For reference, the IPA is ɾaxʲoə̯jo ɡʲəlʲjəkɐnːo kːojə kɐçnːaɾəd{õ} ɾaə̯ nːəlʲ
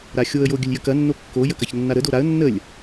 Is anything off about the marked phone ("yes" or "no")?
yes